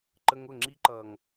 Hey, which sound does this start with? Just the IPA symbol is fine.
ǃ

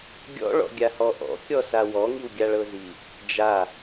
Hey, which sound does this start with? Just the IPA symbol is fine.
ɡʲ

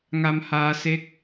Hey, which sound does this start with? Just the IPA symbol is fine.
ŋ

